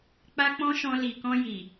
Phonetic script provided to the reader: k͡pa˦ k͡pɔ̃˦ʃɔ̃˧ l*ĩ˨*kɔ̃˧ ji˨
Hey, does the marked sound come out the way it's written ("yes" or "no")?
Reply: no